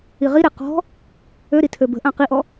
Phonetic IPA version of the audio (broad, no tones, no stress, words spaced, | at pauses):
iʁiɾe qɔ̤ | øɾi tʰøbə̤ʔã qiʔɔ